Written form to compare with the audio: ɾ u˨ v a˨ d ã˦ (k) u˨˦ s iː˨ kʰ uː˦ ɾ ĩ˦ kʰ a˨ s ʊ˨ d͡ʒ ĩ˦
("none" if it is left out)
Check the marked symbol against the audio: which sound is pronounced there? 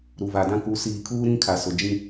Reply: k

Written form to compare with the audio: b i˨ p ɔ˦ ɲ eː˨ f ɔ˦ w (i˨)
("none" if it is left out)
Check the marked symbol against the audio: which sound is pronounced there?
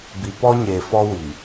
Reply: i˨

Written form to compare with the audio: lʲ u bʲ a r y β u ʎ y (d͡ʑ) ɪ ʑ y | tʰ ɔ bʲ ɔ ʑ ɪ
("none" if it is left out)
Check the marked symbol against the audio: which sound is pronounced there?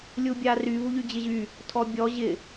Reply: d͡ʑ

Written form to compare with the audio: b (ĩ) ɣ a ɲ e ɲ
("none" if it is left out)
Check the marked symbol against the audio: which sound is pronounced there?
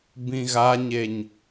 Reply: ĩ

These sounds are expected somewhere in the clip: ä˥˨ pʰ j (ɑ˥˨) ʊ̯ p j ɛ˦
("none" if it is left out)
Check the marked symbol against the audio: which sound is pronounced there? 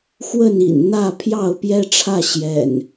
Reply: ɑ˥˨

